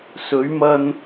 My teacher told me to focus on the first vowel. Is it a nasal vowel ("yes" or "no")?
no